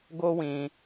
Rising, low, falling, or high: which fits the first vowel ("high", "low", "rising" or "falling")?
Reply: high